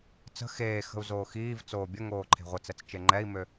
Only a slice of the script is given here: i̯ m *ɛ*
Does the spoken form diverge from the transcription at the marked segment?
yes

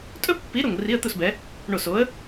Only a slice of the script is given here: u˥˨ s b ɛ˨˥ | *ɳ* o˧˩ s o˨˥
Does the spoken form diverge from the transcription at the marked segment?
no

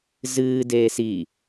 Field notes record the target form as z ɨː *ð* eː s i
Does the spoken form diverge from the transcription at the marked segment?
yes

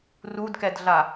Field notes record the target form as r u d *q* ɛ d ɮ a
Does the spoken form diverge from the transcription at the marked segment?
yes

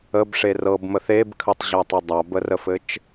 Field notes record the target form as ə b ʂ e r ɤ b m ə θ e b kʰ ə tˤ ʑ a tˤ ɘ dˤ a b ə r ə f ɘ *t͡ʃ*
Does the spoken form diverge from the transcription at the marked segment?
no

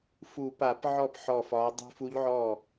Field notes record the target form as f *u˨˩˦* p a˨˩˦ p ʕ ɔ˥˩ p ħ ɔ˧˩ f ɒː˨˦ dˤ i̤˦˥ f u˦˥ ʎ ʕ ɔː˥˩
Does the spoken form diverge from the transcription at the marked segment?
no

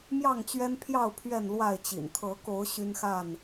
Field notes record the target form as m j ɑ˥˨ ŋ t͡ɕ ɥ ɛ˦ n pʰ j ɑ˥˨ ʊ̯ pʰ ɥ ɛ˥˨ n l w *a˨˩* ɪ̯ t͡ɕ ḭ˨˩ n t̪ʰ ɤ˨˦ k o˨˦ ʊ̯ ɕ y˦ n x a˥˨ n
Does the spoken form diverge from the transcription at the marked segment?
yes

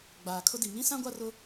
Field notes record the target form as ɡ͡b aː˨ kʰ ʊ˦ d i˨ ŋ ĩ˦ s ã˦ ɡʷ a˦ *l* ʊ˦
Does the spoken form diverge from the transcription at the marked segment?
yes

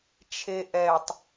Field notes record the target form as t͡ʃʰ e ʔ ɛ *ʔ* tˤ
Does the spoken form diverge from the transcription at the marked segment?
yes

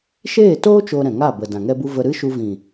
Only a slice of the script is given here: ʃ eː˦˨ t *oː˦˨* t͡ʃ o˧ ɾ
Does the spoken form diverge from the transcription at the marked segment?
yes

